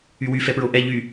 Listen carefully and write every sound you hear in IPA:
y w y f ɛ p ɹ o ʔ ɛ ʎ y

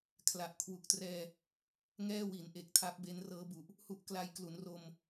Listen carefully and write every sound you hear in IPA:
kʰ l a˨˩ ʔ kʰ w u˨˩ k̚ t r ɛː˧ | ŋ ɛː˥˩ w i˩˦ n ʔ e˨˩ k̚ tʰ a˦˥ p̚ b e˦˥ n r ɤː˦˥ b u˨˩ ʔ | h u˦˥ ʔ k l a˧ j k l u˩˦ n r o˧ m

